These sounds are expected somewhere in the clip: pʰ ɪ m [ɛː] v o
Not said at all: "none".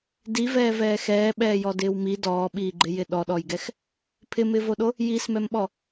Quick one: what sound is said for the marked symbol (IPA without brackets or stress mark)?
ɪː